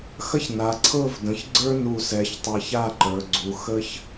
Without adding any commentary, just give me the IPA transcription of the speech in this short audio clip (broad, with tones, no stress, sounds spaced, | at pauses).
x ɐ˥ ç n a˩˧ ǀʰ ɤ˥˧ v d ə̃˩˧ ç ɡ͡ǀ ə˞˥ n u˧˩ s ɛ˩˧ ç tˤ ɤ˧ ç a˥˧ ǃ ə˞˩˧ ɡ͡ǀ u˩˧ x ə˥ ç